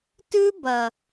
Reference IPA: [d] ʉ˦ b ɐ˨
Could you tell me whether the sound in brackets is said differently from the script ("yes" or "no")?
yes